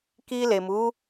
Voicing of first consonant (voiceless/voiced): voiceless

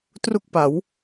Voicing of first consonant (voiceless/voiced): voiceless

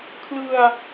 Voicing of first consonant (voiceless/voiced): voiceless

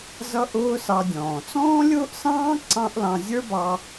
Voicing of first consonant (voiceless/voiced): voiced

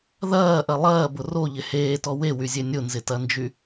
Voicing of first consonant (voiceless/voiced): voiced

